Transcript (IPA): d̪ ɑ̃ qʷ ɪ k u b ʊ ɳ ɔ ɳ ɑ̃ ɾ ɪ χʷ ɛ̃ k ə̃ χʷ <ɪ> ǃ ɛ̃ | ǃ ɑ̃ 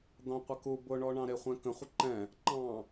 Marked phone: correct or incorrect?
correct